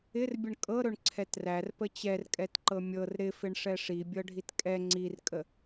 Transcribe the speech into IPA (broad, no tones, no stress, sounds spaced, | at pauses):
ɪ r bʲ ə ɳ kʼ ɤ ɾ ɵ ɳ ǀʰ ɛ t r æ r p ə t͡ɕ ɛ r kʼ ɛ t ǃ ɤ mʲ ɤ r ɾ ɪ f ɪ ɳ ʂ ɛ ʂ i bʲ ɤ ɖʱ i t kʼ ɛ ŋ͡ǀ i r kʼ ə